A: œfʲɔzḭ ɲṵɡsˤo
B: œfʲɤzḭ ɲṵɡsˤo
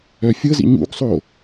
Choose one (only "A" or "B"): B